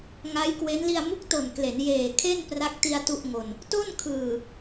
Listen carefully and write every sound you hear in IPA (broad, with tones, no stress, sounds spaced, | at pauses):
ŋ a˦˥ j k w e˦˥ n l i˧ a̯ m u˦˥ k̚ t o˨˩ n k l e˩˦ n j eː˨˩ kʰ e˥˩ n p r a˦˥ k̚ t i˧ a̯ t u˥˩ ʔ ŋ o˧ n | t o˥˩ n kʰ ɯː˨˩